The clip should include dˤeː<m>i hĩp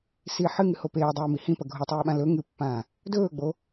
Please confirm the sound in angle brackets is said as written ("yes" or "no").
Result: yes